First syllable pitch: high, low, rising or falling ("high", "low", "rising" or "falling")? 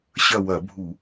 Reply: falling